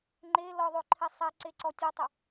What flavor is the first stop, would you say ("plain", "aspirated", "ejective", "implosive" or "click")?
click